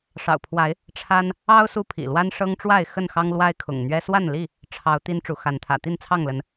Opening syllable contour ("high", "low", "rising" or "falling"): low